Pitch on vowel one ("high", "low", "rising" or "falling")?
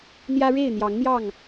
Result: high